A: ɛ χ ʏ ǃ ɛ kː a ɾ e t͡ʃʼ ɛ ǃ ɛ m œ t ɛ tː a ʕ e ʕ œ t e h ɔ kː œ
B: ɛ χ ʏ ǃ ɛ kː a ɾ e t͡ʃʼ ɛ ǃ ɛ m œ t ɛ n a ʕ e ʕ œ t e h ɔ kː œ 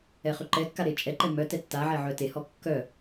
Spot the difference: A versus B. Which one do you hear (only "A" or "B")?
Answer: A